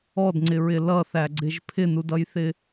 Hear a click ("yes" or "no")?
yes